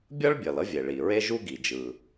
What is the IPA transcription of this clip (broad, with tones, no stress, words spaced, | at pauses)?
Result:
bʲʌ˥ɭbʲʌ˩l ʌ˥vʲe˩ɭi˩ ɹe˥ʒu˥ɡi˩d͡ʒɯ˩